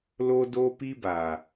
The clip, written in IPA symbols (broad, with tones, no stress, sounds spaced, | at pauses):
l o˦ d o˦ p i˦ b a˨